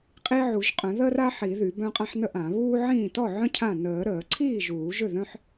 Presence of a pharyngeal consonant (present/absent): present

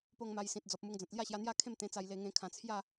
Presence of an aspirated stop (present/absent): present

